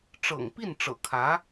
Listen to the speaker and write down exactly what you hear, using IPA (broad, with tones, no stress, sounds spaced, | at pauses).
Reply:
ʈ͡ʂ ɤ̰˨˩ ŋ p i˥˩ n ʈ͡ʂ ɤ̰˨˩ kʰ ä˧˥